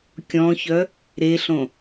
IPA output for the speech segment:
kʲ ɔ̃ ç œ | ɾ e ɬ õ

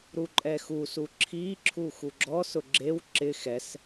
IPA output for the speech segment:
ɾ u ǃʼ ɛ x u s u ǁʰ i ǁʰ u x u ɡ͡ǁ ɔ s ʊ ɡ͡ǁ e w ǁ ɪ x ɛ s

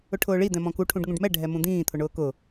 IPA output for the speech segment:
ʊ ʈʰ ʊː ɭ i d̪ ɛ̃ m ɔ̃ k u ʈʰ ũ ɖ ŋ ũ ɖ m ɛ ɖʱ ɛ m ũ d̪ ĩː t̪ʰ ʊ ɳ ʊː k ʊ

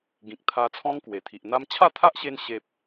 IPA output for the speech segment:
ɡ ĩ˨ k̚ t̪ʰ a˧ t͡sʰ ɔ̃˦ ŋ k w e˨˩ t̪ʰ i˨ ʔ n̪ a˦ m t͡ɕʰ a˥˧ t̪ʰ a˦ ʔ ɕ e˧ n ɕ e˦ p̚

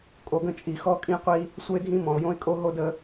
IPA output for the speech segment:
kʼ o˨ ɡ ə̃˦˨ t͡ʃʼ i˨ x ɔ˦ kʼ ĩ˦ qʷ i˦ | sʷ ə˦ ɪ̯ dʱ ĩ˦ m ɔ̃˨ ʊ̯ j õ˦ ɪ̯ kʼ o˦ ɦ o˦ d ə˨˦

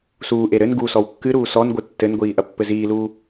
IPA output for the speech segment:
s uː ʔ e ɾ ɘ n ɡ u s ɔ w kː ɨ ɾ uː s ɔ n ɡʷ ɨ tː ɘ n ɡʷ iː ʔ ɐ pː ɘ z iː l uː

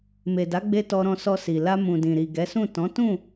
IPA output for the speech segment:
m e˨ d a˨˦ ɡ͡b e˧ t ɔ˧ ɾ ɔ̃˧ s ɔ˧ s i˨ l a˧ m ũ˨ d ĩ˨ ɾ i˨ ɡ ɛ˨˦ s ũ˦˨ t ɔ̃˨˦ t ũ˦˨

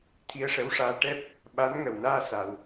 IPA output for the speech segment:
t̪ʰ i˧ ə̯ ʂ ə˧˥ w ʂ aː˧ ʈ ɛ˦˥ p̚ | ɓ a˧˥ n ŋ ə˨˩ w n aː˧ s a˧ w

